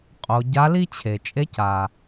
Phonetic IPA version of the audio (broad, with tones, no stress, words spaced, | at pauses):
qʼo˩˧ ɟa˧˥li˥ t͡ɕʰe˩t͡ʃʼe˧˥ca˩